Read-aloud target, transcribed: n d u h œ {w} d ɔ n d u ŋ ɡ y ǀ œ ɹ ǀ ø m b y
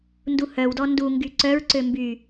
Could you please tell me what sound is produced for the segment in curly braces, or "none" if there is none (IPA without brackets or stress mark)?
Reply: w